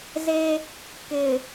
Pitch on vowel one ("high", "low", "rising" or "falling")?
high